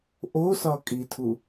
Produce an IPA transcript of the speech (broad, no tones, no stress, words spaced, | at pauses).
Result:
ʔosɒkʼitʰu